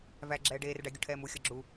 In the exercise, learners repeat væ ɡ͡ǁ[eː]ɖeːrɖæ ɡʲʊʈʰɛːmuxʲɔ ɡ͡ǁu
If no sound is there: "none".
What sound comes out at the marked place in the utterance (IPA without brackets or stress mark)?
ɛː